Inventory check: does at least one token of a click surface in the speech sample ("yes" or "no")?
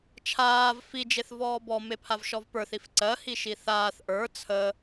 yes